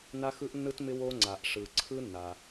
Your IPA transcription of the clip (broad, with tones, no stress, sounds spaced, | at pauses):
n a˥ x ɯ˥ ʔ nː ɯ˥ t m ɪ˥ w o˥ ŋ͡ǀ a˩ ʔ ʂ ɯ˩ ǀʰ ɯ˥ nː a˩